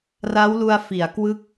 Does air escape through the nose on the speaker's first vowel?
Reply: no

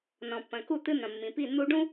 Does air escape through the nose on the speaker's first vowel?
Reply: yes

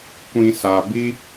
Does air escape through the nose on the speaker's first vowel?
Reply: yes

